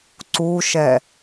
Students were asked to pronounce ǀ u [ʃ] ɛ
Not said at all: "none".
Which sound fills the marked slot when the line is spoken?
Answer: ʃ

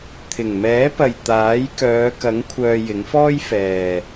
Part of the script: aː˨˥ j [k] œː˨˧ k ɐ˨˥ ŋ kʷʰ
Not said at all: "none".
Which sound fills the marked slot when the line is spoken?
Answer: k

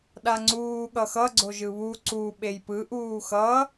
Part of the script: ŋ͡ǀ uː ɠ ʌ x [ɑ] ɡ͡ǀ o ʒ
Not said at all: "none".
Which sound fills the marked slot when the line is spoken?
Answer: ʌ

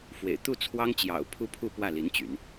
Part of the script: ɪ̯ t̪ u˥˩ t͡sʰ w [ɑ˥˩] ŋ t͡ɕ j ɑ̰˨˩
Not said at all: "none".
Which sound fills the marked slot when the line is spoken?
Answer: ɑ˥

